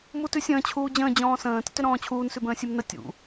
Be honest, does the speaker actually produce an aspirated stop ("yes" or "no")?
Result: yes